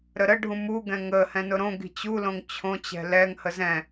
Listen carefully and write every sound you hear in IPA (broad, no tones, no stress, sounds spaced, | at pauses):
ɾ ə ɾ ə ɖʱ ũ m u ɡ ɛ̃ ŋ ə h ɛ̃ n ʊ ɾ õ ɡ i̤ t͡ɕ u l õ ŋ t͡ɕʰ õ t͡ɕ ɛ̤ l ɛ ŋ h ə z ɛ̃